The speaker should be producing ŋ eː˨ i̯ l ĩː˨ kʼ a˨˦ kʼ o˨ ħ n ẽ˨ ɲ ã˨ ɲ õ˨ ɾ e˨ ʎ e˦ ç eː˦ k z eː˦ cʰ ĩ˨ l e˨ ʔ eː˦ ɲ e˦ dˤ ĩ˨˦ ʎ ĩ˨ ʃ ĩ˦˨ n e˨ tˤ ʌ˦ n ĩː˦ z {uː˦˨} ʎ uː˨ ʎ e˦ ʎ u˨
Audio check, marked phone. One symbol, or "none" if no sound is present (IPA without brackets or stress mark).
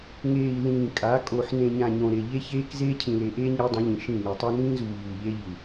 uː˨